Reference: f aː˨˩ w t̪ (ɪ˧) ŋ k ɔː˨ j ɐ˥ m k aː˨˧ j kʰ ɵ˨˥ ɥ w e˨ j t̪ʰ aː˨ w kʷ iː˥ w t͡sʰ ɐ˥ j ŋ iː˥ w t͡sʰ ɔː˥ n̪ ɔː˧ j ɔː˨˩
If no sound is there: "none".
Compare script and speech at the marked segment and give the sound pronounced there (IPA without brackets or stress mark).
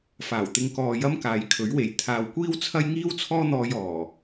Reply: ɪ˧